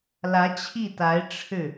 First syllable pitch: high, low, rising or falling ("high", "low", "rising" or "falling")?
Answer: rising